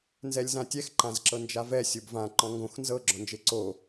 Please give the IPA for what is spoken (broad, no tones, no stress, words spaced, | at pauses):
nzɛlʲzãtʲɛx ǃãzǁɤnd͡ʒavɛ sʲobvã ǃɔ̃ŋɡõx nzɤ ɡ͡ǁɔ̃nd͡ʒeǀo